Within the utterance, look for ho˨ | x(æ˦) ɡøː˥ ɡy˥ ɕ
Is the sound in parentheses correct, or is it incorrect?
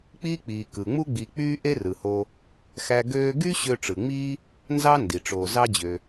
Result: correct